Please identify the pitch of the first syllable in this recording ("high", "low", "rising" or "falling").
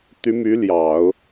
rising